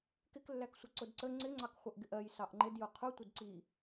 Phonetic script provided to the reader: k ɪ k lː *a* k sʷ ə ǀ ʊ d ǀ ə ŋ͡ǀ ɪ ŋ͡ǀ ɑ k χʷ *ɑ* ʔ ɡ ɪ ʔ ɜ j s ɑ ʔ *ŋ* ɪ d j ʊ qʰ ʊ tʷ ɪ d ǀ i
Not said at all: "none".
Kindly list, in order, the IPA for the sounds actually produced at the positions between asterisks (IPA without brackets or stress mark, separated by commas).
æ, ʌ, ŋ͡ǃ